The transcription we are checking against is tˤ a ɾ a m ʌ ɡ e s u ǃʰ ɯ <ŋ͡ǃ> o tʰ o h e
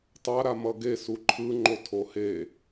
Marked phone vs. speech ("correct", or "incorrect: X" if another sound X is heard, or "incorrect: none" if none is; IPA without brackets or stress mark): correct